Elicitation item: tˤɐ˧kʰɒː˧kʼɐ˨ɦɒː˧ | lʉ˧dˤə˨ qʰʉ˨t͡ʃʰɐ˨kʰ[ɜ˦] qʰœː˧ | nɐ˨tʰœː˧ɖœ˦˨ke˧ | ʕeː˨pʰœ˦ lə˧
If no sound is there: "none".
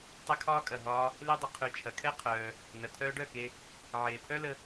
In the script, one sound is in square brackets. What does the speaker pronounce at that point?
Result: ɛ˦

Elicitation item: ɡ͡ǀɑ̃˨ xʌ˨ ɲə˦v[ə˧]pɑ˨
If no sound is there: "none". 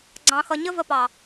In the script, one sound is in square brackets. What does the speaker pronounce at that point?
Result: ə˧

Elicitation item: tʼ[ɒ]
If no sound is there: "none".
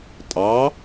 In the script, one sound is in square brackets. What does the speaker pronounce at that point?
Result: ɑ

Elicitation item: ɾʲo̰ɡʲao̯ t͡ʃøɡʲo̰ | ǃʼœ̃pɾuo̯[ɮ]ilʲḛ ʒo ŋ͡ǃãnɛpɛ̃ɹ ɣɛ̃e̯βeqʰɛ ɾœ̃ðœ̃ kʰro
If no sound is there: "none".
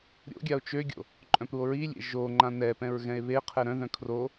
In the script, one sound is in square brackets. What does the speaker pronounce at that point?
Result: ɹ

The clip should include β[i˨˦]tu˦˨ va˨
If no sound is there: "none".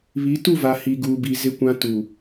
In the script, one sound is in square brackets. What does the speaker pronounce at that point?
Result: i˨˦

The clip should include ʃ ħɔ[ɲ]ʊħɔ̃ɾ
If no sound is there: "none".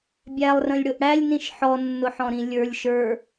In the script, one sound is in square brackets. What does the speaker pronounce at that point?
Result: nː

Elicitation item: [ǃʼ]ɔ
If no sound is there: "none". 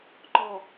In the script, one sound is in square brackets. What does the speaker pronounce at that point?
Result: ǃ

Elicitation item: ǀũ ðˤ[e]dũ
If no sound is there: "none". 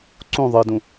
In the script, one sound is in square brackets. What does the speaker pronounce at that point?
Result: ɨ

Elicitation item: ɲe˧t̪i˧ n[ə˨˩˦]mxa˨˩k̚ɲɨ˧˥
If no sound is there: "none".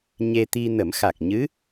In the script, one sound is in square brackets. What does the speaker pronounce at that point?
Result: ə˨˩˦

